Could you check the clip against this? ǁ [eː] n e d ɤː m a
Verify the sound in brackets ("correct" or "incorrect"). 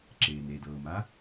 correct